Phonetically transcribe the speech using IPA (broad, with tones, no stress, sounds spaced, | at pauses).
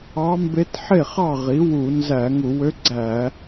ɑ˧˥ m b e˧˥ t ħ e˥˩ χ ɑ˥˩ ʁ i˩˥ w u˧˩˧ n z æ˧˩˧ ŋ u˧˩˧ w ø˧˥ ɡ͡ǀ æ˧˩˧